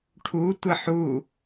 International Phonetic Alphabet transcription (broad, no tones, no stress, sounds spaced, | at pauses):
ʈʰ u tʷ ə ħ u